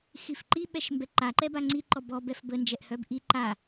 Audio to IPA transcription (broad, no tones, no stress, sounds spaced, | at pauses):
x i f ǃ i ɓ ɛ ʃ m b ɛ ǃ a ǃ ɛ b a ŋ͡ǀ i ǃ ɔ b ɔ b ɛ f b ə n d͡ʒ ɛ ʔ h œ b ʔ i ǃ a